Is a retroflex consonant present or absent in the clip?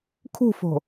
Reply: absent